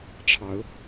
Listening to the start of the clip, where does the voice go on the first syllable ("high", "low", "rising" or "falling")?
rising